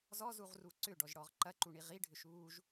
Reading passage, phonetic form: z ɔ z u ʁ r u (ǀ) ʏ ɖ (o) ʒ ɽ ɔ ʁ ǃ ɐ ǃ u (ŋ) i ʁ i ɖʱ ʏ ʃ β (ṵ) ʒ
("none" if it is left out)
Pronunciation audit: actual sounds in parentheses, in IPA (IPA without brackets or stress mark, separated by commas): ǀ, ɔ, ɳ, u